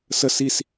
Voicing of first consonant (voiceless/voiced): voiceless